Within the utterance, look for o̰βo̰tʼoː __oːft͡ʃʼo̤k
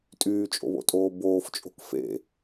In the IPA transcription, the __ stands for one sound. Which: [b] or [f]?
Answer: b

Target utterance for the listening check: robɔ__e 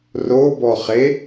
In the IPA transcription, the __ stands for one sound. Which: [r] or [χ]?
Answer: χ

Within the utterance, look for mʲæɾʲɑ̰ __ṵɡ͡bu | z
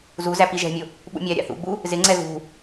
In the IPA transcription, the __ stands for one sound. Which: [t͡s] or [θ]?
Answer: θ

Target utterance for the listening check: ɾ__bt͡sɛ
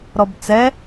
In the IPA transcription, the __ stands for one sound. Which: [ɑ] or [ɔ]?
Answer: ɔ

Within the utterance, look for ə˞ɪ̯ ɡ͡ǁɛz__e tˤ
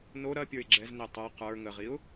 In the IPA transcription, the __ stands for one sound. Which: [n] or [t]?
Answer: n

